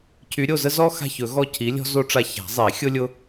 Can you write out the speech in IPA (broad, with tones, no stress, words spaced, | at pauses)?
cʰy˨˥ɾʲo˦˨zə˥ zɔ˥ xa̤˦˨çɵ˨˩˦ɣɔ˦˨ cʰi˨˥lʲɔ̤˥zo˥ʈ͡ʂa˦˨ ça̤˨˩˦zˤi˨˩˦ xʲʊ˥lʲʊ˥